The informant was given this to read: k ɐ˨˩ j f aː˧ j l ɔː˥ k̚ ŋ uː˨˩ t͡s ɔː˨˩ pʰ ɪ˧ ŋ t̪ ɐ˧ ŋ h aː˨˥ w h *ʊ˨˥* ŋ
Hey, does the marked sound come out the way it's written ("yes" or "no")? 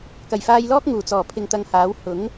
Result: yes